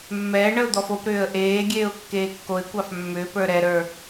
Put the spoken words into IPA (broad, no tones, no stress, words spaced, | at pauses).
mːɛːɳəʊ̯ d̪ɔfopɾʏːə̯ ʔeːɡʲeːʊ̯ kːeːkːoɪ̯kʷɑf mːʏːpə˞ ɾɛɾə˞